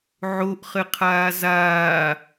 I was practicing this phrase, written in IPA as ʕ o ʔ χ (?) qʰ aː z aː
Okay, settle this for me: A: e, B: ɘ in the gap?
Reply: B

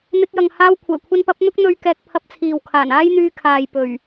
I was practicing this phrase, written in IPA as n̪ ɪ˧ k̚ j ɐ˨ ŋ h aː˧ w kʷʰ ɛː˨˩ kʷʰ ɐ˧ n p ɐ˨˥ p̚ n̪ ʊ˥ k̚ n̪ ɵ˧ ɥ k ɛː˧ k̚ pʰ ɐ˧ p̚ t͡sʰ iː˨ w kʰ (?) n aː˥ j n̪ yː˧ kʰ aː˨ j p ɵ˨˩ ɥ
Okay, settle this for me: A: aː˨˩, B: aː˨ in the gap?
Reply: A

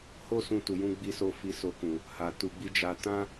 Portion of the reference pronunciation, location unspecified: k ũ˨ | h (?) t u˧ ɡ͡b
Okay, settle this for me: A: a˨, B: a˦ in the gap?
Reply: A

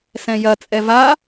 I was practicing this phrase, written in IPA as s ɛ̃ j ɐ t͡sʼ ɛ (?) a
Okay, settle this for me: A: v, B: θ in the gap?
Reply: A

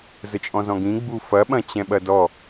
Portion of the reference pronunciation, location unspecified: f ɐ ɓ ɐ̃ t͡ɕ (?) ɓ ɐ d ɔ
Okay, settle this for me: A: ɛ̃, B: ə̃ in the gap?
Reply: A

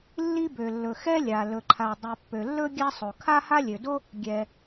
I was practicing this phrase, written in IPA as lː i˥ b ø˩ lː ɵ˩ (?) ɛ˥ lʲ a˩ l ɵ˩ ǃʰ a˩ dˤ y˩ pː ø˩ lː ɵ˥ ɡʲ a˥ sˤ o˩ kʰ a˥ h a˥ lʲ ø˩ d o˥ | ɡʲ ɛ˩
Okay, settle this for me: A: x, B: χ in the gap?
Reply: A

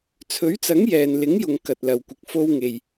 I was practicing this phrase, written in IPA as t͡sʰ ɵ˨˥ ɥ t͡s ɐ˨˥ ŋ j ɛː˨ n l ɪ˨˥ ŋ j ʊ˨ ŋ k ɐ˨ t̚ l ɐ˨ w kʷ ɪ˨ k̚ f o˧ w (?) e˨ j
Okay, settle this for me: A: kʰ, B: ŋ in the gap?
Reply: B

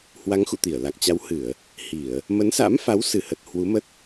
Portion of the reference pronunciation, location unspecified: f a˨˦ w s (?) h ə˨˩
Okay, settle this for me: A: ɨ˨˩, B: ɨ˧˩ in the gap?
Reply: B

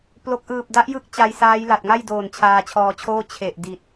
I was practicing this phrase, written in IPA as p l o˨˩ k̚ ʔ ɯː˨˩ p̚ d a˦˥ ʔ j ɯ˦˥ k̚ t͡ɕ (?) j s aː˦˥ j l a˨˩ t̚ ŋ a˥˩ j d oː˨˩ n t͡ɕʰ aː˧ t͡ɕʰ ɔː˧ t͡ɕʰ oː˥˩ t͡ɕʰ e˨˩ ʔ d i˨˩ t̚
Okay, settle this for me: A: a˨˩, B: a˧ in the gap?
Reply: B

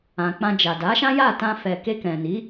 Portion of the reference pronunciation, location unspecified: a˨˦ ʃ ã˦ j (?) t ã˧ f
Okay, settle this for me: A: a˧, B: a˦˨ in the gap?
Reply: B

